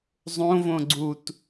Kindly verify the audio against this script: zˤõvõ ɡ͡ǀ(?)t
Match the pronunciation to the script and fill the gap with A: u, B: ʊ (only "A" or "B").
A